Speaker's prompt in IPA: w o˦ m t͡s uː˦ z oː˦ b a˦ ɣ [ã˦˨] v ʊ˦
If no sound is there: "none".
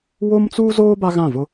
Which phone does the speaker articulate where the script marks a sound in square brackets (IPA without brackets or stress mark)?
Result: ã˦˨